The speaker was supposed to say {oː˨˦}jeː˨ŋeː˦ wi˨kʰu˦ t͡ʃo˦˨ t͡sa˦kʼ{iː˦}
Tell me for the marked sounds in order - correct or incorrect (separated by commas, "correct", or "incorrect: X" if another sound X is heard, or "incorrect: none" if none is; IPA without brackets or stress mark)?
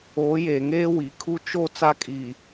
correct, incorrect: iː˨